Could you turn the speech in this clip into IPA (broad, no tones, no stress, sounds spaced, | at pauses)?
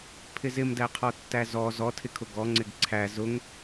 pʰ ɪ z ɪ m d æ qʰ ɔ tː æ z ɔ z ɔ tʰ ɪ kʰ ʊ ɡ ɔ ŋ͡ǀ ɪ ɡ ǀʰ æ z ʊ ŋ